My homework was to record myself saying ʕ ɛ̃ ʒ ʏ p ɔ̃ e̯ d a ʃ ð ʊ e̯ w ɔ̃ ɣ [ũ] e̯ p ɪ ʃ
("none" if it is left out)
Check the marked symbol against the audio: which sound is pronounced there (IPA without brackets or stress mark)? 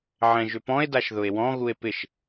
u